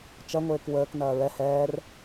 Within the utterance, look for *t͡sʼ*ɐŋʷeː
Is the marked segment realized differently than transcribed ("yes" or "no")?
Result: yes